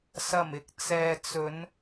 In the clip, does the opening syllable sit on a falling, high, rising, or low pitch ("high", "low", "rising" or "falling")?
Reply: low